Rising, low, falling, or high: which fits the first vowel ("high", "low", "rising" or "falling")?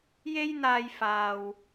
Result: high